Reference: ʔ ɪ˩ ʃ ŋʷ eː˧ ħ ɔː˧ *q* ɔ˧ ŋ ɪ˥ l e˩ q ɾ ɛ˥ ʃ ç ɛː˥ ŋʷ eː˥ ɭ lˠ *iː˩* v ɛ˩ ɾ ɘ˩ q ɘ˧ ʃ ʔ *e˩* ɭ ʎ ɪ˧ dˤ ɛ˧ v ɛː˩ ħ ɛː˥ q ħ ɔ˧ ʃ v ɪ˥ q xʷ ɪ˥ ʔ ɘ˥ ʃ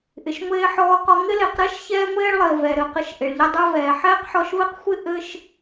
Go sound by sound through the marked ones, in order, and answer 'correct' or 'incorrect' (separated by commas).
correct, incorrect, correct